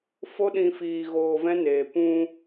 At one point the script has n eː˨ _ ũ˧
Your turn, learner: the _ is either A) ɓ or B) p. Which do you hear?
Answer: B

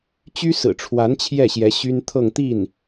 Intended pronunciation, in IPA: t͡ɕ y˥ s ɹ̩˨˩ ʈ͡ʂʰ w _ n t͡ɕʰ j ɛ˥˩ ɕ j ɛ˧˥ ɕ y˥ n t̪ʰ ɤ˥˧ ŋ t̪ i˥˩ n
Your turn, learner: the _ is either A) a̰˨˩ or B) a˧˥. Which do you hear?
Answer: B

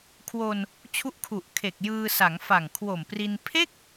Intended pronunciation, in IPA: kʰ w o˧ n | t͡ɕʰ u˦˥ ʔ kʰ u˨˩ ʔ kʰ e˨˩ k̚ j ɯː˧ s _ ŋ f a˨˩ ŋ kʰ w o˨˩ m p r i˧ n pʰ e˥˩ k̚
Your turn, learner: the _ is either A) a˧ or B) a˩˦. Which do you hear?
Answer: B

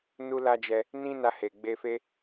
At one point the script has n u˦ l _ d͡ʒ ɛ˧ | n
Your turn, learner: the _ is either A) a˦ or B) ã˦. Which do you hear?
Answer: A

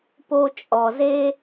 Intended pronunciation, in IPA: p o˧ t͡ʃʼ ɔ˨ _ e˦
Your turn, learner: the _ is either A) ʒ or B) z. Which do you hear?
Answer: B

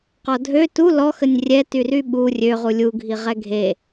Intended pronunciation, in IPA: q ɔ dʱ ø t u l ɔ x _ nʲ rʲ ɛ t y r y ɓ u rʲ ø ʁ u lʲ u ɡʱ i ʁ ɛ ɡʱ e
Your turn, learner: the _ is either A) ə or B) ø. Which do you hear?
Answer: A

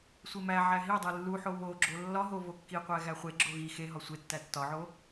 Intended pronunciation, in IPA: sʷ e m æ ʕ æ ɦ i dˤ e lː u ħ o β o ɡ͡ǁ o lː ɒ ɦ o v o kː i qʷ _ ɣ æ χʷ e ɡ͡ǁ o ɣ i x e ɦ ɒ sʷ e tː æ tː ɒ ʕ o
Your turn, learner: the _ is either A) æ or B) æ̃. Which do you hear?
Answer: A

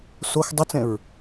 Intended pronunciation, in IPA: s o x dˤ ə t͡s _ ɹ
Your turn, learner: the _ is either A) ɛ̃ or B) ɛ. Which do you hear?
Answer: A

